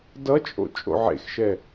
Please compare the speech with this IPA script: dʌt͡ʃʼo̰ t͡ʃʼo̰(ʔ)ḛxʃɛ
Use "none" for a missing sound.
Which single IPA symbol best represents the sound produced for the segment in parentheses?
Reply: ʕ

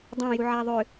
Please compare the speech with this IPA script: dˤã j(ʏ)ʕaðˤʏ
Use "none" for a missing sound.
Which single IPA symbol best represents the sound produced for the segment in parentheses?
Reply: u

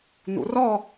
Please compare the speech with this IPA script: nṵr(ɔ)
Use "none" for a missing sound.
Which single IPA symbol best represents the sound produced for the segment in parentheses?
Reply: ɔ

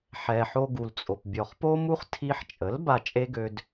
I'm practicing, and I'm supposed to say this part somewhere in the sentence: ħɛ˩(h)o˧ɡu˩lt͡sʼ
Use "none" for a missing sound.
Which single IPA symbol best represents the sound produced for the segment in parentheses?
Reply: ħ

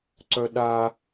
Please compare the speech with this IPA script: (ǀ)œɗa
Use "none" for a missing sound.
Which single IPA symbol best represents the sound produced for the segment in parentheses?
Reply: ǀ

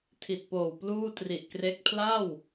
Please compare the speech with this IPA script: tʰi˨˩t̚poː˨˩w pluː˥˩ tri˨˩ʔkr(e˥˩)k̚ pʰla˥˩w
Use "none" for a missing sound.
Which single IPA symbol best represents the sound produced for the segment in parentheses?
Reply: e˦˥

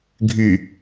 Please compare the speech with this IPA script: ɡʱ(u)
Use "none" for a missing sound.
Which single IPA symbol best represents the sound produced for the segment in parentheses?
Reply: y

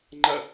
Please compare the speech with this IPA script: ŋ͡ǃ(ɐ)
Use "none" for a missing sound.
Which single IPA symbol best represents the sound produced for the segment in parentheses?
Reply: ɐ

